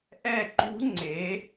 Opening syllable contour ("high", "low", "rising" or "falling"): falling